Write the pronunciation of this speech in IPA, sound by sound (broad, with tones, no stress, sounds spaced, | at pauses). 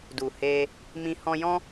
d u˨ h e˧ | m ĩ˧ h ɔ̃˧ j ɔ̃˦